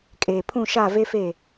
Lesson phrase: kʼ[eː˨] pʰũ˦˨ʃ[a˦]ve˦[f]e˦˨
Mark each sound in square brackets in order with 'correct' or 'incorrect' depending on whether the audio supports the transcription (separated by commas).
correct, incorrect, correct